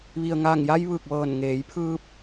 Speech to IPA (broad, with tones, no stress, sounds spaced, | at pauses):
ʋ i˩ ə̯ ŋ aː˧˩ ŋ j a˧ j ʋ ɯː˧˩ k̚ ʋ ɤː˧˩ n ŋ eː˩˧ j pʰ ɯː˧ p̚